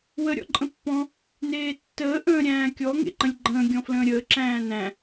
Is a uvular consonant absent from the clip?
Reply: yes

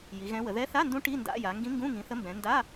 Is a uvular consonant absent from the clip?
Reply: yes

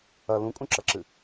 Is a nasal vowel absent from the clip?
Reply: no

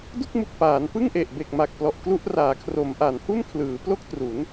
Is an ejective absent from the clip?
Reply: yes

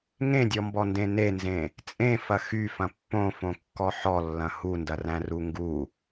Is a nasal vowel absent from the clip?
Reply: no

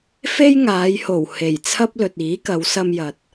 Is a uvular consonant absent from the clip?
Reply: yes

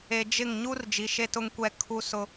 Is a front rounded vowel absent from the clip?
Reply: yes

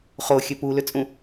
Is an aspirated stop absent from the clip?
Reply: yes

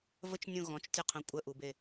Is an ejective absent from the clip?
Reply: no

